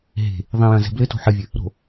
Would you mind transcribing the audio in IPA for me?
ɦ e̤ | ðˤ ĩ j ɐ̃ z ɛ̤ b l ɘ t o̤ ħ ɘ vʲ ɘ | ɾ o̤

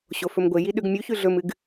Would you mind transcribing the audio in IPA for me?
ɕ o f ɵ m ɡʷ e j i ɗ ʉ ɡ mʲ u ç ʉ ɮ ɵ m ɨ ɡ

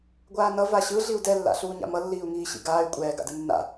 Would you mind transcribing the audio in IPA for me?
ɡʷ aː n ʌ v a ɕ ɯ ɮ i u̯ d ɛ lː a̰ ɬ uː ɲ a̰ m ʌ lː iː u̯ ŋ iː ɕ ḭ ɡ aː y̯ kʷʼ ɛː ɡ a̰ d ɯ nː a̰

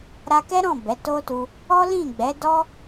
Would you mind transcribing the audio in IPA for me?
ɾ a˧ k ɛ˦ ɾ ɔ̃˦˨ b ɛ˨˦ t o˦ t u˧ | ɔ˦ l ĩ˦˨ ɡ͡b ɛ˨˦ d ɔ˦

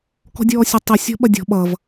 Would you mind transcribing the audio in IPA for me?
k ɔ̤ dʲ ɔː sʲ ʌ tˤ i sʲ ɔ̤ ɓ ɐ dʲ ɔ̤ ɓ ʌ v

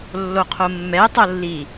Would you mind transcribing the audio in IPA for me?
lː o qʰ o mː ɛ tˤ o lː i

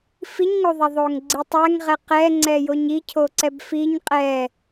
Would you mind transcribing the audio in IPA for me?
f i ɲ ŋ o ðˤ ɛ ðˤ o ŋ ɡ͡ǀ i tˤ ɛ ŋ ʁ ɛ q ɛ ŋ͡ǀ ɛ j o ɲ i cʰ o ǀ ɛ b f i ɲ qʼ ɛ

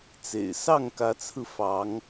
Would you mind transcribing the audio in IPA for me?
t͡s ḛ˨˩ ɪ̯ s ɑ˥˨ ŋ k ä˨˦ t͡sʰ ɹ̩˧ f ɑ˨˦ ŋ

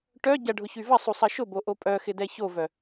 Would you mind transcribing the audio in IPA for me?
ʈ œ ɟ ɐ ɖʱ ʊ ç y v ɐ sˤ u sˤ ɐ ʃ ʊ b o ʔ o pʼ œ x ɪ d ɛ ç o v œ

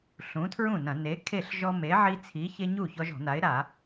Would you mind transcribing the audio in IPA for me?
ɬ ũ˨˥ tʰ ɹ ũ˥˩ n ɐ̃˧˩˧ n e˨˥ kʰ e˥˩ ɬ ʒ ɔ˦ m e˨˥ ʕ i˦ t͡sʰ i˨˥ ç e˦ ɲ u˥˩ ç ɔ˦ ʒ ɔ̤˧˩˧ n a˨˥ ɪ̯ ɾ a˧˩˧

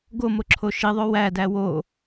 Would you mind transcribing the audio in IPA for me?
ɡ o m o ǁʰ o ʃ i ðˤ o w æ d æ w o

